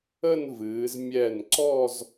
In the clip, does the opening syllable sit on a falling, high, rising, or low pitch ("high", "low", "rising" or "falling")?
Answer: falling